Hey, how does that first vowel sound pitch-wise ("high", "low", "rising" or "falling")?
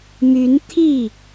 rising